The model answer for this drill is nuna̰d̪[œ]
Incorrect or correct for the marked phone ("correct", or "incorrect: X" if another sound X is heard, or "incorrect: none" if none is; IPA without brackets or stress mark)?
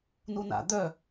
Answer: correct